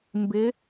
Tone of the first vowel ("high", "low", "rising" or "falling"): rising